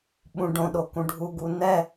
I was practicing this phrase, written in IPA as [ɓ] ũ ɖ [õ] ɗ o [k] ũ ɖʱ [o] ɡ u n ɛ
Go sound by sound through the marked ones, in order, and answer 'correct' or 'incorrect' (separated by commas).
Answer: correct, correct, correct, incorrect